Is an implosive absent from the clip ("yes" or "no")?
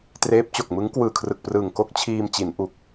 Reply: yes